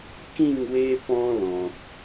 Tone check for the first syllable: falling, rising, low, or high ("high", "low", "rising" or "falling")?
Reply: falling